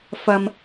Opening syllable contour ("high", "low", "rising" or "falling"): high